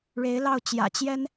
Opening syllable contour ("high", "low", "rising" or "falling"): rising